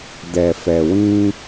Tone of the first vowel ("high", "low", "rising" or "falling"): low